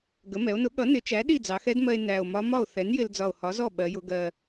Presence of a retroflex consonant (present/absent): absent